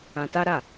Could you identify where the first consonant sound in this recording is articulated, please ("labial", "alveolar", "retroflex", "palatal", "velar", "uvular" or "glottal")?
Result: alveolar